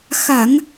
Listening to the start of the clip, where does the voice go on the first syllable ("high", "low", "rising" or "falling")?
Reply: low